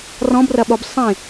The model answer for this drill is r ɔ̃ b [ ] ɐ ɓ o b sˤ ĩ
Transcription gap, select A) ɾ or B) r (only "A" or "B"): B